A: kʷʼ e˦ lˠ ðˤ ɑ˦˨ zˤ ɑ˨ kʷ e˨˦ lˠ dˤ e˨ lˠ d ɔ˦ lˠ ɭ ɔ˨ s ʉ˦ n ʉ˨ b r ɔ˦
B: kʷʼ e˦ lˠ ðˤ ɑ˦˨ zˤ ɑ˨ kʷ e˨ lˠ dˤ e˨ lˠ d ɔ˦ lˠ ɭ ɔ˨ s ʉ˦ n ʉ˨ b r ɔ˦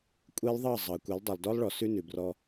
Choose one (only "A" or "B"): A